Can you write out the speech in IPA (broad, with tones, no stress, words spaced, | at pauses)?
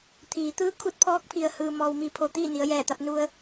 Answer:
t̪ʰiː˩˧t̪ɯː˧˥ kʰu˧t̚pʰɔː˧˥k̚pʰi˩ə̯ hɯː˩mɔː˩wmi˩˧pʰo˩ t̪iː˥˨ni˩˧ə̯jɛː˧˩t̪a˧p̚ nu˧ə̯